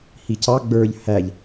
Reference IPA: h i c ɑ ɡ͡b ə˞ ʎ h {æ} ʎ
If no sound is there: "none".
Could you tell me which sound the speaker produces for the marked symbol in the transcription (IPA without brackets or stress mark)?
æ